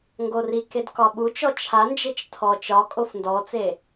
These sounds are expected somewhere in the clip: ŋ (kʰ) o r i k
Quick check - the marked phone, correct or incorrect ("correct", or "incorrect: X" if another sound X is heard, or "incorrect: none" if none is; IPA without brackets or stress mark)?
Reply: incorrect: ɡ